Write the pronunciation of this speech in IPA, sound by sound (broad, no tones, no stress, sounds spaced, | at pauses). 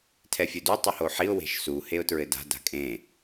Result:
tʰ ɛ fʲ u d u tˤ ɨ h o ħ i ʊ̯ w e̤ ʃ s u h e ʊ̯ t ɹ ɘ d a̤ d a̤ kʼ ẽ